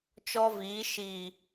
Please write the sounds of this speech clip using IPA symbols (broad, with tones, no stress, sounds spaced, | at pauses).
t͡ʃ ɔ˦ v iː˨˦ ʃ iː˨